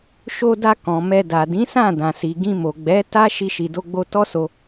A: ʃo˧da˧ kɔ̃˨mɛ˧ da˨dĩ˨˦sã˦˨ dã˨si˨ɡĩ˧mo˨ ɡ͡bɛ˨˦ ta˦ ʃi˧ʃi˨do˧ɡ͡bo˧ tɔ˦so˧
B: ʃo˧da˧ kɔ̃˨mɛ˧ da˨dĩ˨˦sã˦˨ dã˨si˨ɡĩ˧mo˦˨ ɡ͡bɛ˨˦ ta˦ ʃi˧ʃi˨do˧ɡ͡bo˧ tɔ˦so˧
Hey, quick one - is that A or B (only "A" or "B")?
A